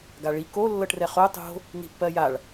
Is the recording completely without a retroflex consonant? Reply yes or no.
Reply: no